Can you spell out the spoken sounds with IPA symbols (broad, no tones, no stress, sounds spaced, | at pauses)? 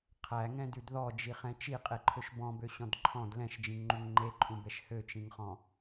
qʰ æ ŋ ɛ̃ d ʉ d ð ɔ d͡ʒ i χ ɛ̃ t͡ʃ i qʼ e ǃʰ ø ʃ b ɔ̃ b ø ɕ ɔ̃ d ǃʰ ɔ̃ d l ɛ̃ ʃ d͡ʒ ĩ ŋ ŋ͡ǃ u ŋ ŋ͡ǃ e ǃʼ ũ b ɛ ʃ h ø t͡ʃ ĩ ŋ χ ɔ̃